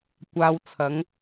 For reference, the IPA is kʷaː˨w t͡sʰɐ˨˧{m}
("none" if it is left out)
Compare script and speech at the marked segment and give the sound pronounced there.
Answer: ŋ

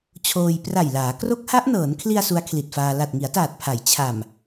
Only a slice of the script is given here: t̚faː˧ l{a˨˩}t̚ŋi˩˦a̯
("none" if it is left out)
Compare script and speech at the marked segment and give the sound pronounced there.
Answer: a˨˩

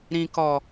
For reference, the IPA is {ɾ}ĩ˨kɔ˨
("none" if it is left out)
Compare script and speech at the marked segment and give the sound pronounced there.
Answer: ɾ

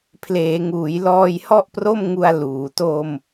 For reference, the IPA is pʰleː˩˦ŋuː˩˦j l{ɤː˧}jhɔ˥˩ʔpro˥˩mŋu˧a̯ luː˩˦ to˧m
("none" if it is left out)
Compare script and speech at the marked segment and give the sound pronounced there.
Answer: ɔː˧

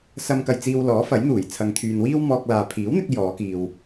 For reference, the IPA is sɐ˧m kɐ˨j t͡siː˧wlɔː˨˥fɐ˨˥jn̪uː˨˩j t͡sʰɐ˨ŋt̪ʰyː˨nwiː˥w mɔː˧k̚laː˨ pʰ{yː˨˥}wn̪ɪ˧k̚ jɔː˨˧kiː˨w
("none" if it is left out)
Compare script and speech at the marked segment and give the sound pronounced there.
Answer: iː˨˥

